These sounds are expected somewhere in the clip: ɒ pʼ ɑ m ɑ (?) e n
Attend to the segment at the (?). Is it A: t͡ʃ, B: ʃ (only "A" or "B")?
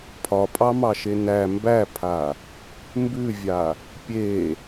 B